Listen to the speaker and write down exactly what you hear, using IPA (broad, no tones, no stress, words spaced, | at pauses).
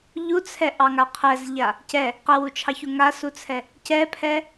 ʎut͡sʰɛʔɑŋa qʰɛzʎa | cɛ | qɛwut͡ʃʰɑçu ŋasut͡sʰɛ | cɛpʰɛ